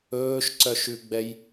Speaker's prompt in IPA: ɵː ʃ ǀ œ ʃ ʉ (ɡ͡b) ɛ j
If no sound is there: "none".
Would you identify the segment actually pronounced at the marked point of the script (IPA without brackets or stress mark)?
ɡ͡b